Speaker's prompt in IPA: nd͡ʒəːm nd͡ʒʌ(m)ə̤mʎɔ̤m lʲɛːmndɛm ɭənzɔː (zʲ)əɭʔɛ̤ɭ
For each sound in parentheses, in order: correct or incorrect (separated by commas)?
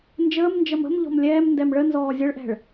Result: correct, correct